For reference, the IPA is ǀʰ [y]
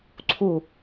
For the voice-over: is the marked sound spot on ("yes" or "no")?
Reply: no